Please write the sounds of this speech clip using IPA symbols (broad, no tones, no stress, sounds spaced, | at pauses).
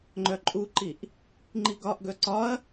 ŋ͡ǃ œ ǃʼ u ǃ i ʔ | ŋ͡ǃ i ɡ ɒ ʔ ɡ œ ǀ ɒ ɐ̯